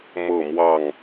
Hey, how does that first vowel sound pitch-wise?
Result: falling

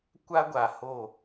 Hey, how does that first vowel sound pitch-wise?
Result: high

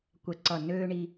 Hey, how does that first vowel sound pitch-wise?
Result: low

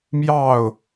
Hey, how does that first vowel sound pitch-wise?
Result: falling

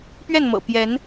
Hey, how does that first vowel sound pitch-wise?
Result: falling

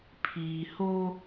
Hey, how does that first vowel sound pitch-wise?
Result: low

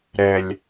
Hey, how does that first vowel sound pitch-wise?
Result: low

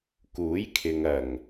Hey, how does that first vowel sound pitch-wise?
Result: rising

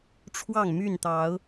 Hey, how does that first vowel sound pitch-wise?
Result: falling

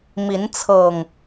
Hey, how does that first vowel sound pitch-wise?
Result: rising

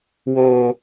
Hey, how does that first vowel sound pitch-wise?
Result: low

